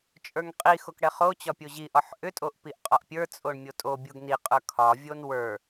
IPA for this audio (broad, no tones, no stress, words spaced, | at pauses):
t͡ʃʼə˞ŋqʼixok ɽɛχot͡ɕɒ pʲoʑiʔɒħ ʔʏtʼoʔ piʔqʼɒʔpʲə˞t͡sʼoɳ mʲotʼobʲoɡ niqʼə˞ kʰɒvʲon wə˞